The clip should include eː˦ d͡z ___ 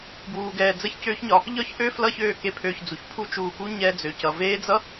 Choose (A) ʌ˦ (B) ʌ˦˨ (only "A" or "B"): A